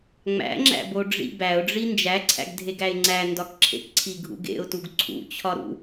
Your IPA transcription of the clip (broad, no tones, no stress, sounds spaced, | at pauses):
ŋ͡m æ̰ ŋ͡ǁ æ̰ b o ɖ͡ʐ ḭ b æ ʊ̯ ɖ͡ʐ i n d͡ʒ æ ǀʰ æ̰ ɡ dʱ e ɡ æ ɪ̯ ŋ͡ǀ æ n d ɒ k ǁʰ ḛ k ǀʰ i ɡʱ ṵ ɡ ḛ ʊ̯ t u ɡ ǀʰ ṵ t͡ɕʰ ɒ ɾ ṵ